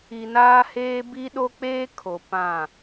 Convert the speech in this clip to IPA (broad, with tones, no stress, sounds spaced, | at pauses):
i˨ n aː˦ h eː˦ b i˦ ɗ o˦ k͡p eː˦ kʰ o˨ p ã˦˨